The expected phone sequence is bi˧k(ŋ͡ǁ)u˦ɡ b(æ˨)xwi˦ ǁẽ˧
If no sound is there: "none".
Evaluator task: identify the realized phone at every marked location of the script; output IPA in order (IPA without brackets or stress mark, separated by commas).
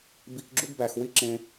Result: ɡ͡ǁ, æ˨